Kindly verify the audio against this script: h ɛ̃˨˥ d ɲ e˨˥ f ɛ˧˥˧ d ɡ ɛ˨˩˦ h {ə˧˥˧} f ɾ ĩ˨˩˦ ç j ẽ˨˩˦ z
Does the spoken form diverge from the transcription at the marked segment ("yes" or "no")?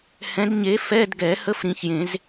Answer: no